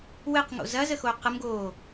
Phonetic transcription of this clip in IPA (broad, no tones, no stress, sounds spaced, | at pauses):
w ɘ q ŋ o̰ z ɐ z ə x o q ə m ɡ oː